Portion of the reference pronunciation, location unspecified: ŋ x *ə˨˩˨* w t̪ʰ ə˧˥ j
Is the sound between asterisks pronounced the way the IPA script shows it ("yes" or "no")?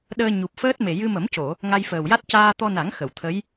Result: yes